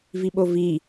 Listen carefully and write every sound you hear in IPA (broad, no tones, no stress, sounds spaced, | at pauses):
v i ɓ o v i